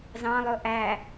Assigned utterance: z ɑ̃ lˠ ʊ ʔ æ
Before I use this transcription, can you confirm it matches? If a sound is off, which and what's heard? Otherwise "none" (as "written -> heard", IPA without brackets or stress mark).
none